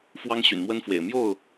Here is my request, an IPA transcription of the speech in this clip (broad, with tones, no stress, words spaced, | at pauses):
fwɑ˦ŋ ɕy̰˨˩nmwə˦nfwḛ˨˩ɪ̯ mjo˥˨ʊ̯